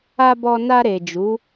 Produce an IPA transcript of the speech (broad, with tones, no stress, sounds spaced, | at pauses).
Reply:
a˧ b ɔ˧ n a˧ ɾ e˨ d͡ʒ u˨˦